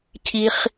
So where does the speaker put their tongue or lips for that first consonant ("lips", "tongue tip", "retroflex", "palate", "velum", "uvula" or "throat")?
palate